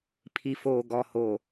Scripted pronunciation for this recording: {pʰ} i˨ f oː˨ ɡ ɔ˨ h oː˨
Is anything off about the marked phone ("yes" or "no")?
no